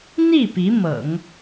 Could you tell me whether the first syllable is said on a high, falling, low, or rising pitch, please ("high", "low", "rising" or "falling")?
falling